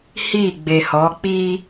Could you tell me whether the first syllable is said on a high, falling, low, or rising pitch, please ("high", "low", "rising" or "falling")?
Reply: falling